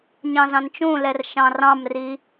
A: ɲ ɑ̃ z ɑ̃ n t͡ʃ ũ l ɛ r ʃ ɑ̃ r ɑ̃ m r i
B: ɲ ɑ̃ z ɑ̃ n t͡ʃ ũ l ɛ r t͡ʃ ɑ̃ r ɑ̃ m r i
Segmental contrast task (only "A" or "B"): A